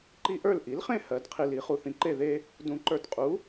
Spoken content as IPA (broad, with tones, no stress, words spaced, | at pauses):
ǃi˦ʔə˞˥˨l ʔi˩˥lχẽ˥˨ hɜ˨˩˦dqʰi˨l i˨˩˦χu˨θĩ˨ǃe˥˨ ðe˦ | dũ˨˩˦ǃə˞˨tqʼu˩˥